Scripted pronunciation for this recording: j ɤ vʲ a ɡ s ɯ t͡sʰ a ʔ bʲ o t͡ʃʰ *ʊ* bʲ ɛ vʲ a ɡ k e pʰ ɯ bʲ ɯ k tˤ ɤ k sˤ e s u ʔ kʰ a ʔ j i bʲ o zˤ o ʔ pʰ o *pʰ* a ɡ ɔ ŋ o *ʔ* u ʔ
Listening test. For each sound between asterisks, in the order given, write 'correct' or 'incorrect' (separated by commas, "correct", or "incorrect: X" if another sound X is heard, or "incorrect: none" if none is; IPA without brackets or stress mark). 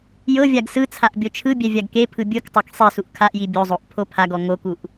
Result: incorrect: ɯ, correct, incorrect: k